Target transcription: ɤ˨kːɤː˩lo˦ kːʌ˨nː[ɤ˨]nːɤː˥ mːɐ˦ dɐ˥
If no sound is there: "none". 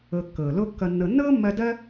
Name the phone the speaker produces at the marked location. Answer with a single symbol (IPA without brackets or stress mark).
ɤ˨